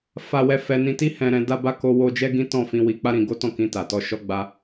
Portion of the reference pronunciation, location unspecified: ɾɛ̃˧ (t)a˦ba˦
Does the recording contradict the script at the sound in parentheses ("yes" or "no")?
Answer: yes